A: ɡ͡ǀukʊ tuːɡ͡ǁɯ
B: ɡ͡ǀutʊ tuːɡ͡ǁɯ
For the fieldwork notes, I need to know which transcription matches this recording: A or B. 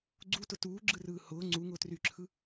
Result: B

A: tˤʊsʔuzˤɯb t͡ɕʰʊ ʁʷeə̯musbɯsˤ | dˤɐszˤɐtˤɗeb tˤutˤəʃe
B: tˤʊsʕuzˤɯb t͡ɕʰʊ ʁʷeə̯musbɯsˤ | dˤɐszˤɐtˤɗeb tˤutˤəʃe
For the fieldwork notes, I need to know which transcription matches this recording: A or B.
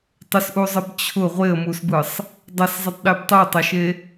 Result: A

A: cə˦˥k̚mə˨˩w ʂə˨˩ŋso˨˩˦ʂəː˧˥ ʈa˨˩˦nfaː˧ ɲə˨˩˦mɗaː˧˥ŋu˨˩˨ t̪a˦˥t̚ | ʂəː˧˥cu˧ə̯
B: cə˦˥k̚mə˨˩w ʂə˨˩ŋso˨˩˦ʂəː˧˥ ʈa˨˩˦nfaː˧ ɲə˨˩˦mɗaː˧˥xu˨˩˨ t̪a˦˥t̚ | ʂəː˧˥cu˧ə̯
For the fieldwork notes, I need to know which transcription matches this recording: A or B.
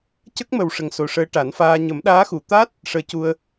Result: B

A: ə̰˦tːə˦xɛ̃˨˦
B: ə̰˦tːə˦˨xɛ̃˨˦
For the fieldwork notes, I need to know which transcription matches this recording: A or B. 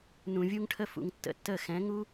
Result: B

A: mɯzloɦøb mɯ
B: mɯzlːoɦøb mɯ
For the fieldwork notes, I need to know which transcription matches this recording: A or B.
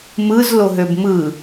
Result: A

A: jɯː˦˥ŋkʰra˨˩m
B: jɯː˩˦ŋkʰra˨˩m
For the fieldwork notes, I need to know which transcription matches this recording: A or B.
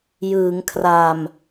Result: B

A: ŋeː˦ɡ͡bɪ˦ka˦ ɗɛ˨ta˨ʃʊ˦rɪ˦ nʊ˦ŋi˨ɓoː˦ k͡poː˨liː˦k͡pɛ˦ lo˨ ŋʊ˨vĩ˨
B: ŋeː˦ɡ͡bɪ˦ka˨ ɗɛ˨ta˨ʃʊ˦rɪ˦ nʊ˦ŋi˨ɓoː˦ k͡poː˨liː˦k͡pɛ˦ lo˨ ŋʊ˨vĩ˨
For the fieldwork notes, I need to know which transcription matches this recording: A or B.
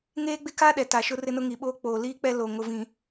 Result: A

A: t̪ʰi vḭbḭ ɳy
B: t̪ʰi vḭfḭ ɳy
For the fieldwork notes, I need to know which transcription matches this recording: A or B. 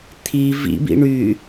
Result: A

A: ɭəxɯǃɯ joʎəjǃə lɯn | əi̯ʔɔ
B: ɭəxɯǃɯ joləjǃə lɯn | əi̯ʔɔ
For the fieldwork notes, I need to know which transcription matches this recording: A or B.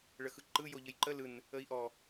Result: A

